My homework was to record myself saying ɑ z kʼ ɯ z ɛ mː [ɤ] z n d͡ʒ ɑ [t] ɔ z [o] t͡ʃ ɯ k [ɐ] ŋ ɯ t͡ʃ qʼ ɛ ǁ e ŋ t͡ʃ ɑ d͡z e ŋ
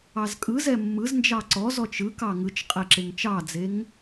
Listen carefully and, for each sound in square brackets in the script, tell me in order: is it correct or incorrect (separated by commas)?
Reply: incorrect, incorrect, incorrect, incorrect